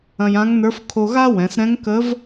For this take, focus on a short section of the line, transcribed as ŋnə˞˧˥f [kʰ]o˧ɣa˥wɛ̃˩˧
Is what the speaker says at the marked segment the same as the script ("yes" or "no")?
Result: yes